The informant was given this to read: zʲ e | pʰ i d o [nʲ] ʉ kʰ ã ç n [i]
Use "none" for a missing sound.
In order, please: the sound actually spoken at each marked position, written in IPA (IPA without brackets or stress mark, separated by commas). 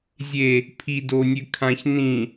nʲ, ĩ